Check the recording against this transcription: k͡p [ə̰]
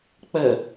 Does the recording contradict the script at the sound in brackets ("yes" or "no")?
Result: yes